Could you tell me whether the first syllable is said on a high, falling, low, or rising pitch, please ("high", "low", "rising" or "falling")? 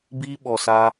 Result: high